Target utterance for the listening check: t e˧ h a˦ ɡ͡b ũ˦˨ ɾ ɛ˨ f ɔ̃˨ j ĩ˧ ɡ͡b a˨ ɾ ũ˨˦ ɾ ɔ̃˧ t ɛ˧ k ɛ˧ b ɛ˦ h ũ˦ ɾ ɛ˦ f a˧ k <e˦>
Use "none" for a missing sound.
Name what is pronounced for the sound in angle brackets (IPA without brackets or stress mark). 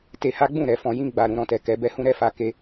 e˦